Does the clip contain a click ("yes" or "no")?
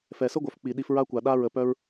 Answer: no